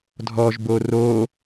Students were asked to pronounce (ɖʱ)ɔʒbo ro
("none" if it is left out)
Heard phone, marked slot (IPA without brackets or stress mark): dʱ